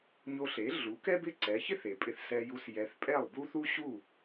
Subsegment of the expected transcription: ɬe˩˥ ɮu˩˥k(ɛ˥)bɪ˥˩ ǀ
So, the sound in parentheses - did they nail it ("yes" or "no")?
yes